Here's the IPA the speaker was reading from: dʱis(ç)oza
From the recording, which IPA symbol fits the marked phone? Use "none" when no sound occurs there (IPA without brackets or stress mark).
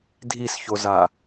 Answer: ç